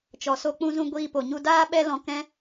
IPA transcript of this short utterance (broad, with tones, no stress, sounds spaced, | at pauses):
t͡ʃ ɔ˨ s o˧ k͡p ũ˧ z ũ˧ ɡʷ iː˧ p o˨ ɲ u˧ d aː˦ ɓ ɛ˦ l ɔ̃˧ k ɛ̃˦